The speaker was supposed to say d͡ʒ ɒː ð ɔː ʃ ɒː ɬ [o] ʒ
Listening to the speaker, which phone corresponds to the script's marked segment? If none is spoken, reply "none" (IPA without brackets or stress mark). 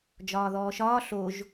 o